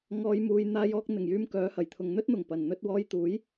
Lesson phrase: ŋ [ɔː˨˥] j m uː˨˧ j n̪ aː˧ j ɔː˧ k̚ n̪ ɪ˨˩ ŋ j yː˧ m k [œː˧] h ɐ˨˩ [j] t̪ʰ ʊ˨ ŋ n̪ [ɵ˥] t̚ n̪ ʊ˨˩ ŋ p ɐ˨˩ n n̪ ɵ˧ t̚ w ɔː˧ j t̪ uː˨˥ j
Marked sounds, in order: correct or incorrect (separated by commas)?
incorrect, incorrect, correct, correct